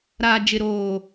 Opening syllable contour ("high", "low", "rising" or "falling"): low